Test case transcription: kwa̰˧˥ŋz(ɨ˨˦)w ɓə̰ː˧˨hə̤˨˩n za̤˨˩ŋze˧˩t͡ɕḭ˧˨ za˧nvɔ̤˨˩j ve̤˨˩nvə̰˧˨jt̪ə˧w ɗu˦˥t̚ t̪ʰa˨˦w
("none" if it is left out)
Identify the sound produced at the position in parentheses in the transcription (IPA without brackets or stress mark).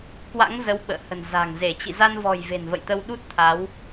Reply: ə˨˦